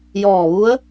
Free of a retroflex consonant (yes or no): yes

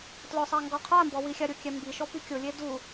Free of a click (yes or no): yes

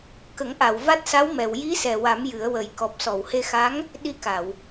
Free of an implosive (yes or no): no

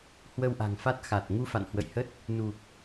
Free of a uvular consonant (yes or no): yes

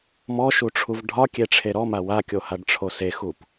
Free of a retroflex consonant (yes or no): no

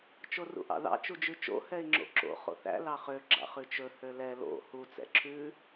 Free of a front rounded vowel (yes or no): no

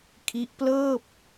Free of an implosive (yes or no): yes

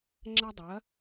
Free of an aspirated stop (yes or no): yes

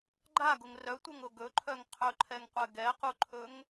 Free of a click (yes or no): no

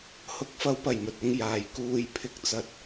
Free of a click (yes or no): yes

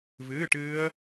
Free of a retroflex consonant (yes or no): no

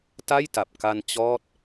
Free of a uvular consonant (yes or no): yes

